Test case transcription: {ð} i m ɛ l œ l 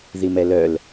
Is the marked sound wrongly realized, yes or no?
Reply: no